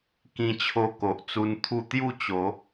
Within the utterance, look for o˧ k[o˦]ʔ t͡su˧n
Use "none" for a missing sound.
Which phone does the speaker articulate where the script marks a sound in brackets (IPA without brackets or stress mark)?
o˨